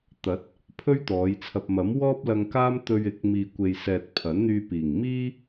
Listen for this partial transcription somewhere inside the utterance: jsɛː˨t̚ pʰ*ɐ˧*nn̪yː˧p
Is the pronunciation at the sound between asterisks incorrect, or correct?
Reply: incorrect